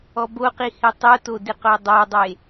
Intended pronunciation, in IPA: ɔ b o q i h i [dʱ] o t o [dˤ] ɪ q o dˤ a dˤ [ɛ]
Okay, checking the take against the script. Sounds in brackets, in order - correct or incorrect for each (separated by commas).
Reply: incorrect, incorrect, incorrect